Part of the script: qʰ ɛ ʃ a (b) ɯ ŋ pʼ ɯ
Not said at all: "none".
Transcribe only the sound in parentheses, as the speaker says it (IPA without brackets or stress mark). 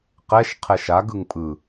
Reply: ɡ